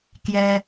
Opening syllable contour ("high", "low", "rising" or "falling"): low